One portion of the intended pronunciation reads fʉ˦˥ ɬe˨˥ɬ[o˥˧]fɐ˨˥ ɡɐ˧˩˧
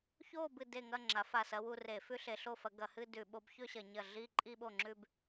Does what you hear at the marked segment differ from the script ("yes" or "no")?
no